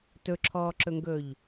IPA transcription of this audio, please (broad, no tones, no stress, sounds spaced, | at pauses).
t ɵ ǁʰ ɔː ǁ ɵ ŋ ɡ ɵː ʎ